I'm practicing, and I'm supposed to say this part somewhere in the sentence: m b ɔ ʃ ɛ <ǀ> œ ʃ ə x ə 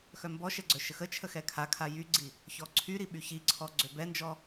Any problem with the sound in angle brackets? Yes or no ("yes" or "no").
yes